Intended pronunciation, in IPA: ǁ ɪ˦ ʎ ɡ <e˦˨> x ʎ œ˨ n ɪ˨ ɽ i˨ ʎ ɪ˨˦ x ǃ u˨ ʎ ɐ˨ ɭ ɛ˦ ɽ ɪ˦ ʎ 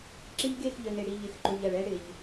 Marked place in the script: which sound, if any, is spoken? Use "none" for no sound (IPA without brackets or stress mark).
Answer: e˦˨